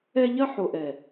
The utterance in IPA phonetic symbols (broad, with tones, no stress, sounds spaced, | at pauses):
ɛ˧ ʎ ɐ˦ ħ o˨ ʔ ɛ˨